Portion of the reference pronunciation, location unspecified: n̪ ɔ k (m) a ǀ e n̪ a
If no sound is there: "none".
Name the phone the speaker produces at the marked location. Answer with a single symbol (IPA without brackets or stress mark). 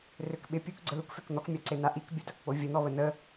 mʲ